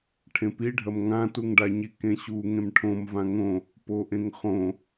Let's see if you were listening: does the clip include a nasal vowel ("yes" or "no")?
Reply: yes